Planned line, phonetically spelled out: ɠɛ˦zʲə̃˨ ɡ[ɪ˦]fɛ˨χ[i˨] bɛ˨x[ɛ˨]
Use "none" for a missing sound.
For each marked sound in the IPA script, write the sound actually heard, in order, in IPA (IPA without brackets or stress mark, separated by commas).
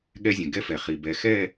ɛ˦, i˨, ɛ˦˨